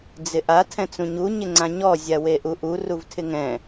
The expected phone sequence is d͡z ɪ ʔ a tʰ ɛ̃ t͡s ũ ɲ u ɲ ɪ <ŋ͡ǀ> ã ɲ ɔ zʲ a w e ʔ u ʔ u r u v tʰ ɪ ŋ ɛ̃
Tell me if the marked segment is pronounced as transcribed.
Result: yes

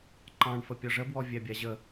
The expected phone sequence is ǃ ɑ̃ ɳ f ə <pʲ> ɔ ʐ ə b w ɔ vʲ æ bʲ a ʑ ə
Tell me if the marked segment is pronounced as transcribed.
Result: yes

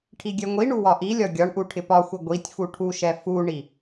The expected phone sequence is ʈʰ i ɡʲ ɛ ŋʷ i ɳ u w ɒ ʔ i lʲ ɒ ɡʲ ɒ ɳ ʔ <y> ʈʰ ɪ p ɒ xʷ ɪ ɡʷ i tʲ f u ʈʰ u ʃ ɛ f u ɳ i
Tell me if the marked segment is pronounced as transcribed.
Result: no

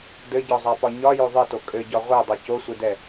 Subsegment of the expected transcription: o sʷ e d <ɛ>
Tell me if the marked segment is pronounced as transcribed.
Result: yes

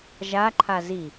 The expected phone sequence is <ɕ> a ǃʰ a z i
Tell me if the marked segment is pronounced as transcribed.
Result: no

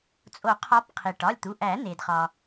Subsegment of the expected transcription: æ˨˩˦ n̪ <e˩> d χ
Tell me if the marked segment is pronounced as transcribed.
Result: yes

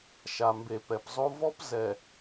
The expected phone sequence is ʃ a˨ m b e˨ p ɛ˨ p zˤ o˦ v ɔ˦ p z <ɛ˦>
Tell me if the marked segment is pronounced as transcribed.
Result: no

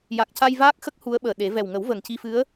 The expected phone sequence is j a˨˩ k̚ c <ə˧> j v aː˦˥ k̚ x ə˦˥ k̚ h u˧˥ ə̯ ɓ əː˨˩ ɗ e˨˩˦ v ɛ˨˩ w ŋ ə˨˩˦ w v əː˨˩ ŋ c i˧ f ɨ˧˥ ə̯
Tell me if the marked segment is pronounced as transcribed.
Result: no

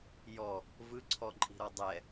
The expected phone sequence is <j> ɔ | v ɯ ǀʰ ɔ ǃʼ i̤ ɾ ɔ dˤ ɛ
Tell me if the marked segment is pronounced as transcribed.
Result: yes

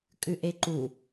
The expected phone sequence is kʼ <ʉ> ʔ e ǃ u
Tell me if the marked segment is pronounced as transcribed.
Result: yes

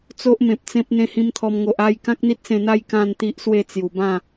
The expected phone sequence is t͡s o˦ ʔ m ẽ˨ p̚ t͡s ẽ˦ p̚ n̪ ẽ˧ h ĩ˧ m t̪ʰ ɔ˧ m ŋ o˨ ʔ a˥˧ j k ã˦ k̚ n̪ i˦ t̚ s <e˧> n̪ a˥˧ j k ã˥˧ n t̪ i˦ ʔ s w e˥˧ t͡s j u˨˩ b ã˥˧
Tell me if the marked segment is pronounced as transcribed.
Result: no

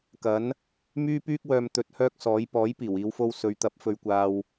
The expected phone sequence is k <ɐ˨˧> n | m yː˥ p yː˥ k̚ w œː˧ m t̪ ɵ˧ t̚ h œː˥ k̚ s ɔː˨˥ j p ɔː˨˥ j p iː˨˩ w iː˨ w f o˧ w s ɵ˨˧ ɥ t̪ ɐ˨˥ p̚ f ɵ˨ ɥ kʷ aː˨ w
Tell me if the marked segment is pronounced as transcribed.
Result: no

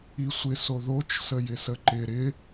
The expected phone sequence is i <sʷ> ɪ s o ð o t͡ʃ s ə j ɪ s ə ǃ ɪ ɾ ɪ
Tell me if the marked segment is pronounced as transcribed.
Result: yes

